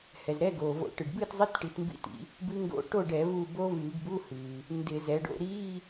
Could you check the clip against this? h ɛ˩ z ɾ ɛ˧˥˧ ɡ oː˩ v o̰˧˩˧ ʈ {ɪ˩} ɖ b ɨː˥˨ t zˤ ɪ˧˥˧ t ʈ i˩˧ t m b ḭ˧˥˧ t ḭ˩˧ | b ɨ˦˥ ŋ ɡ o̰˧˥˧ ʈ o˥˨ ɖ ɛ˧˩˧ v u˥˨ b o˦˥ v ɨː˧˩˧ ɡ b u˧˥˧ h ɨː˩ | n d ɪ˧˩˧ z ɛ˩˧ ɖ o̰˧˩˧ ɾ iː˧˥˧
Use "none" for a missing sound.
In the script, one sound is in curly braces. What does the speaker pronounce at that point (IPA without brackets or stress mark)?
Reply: ɨ˩